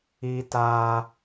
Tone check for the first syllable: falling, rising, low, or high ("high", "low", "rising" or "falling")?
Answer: high